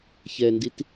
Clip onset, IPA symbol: ç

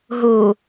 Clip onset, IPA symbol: ɦ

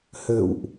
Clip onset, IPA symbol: h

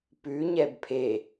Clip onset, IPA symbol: p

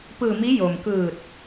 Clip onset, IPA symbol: p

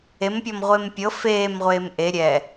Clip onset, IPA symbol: e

